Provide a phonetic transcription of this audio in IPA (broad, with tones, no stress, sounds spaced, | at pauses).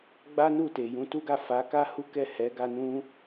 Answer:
ɡ͡b a˦ n u˦˨ t e˨ j ũ˨˦ t u˦ ɡ a˦˨ f a˨˦ k a˦ h u˦ k ɛ˦˨ h ɛ˨˦ ɡ a˧ n ũ˦